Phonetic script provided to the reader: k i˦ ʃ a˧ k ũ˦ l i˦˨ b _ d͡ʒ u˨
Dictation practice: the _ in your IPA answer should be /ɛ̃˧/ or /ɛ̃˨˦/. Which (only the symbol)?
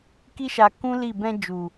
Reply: ɛ̃˧